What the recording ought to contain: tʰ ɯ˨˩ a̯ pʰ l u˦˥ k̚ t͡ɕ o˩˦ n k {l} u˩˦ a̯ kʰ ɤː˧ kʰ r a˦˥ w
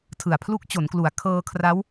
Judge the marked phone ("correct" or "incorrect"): correct